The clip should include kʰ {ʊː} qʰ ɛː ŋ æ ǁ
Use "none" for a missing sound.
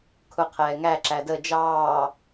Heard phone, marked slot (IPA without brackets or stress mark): ʊ